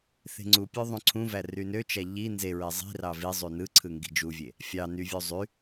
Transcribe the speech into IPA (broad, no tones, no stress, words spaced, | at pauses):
θe̤ŋ͡ǀupʲø ðˤũǀʰũvæ rynøt͡ʃæ ʎi nzeɹe zˤi̤rɑ vizˤy nɯǀʰɯ ŋɡi̤d͡ʒuvʲe | fʲɑ nyvʲu zˤy